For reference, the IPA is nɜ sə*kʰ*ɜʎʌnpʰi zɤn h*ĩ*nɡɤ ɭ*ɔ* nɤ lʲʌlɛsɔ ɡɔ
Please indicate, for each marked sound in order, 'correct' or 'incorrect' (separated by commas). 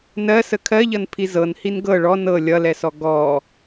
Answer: correct, incorrect, correct